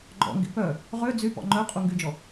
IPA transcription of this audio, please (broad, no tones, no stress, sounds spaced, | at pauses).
ɡ͡ǃ ɔ̰ ŋ ɡ ḭ p œ | ʁ ø d͡z y p ɔ̰ ŋ͡ǃ œ qʼ u ŋ ɡ y d͡ʒ ɔ